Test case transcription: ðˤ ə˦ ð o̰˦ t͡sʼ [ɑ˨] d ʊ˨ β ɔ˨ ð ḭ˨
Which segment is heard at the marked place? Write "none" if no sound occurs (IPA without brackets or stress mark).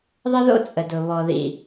ə˨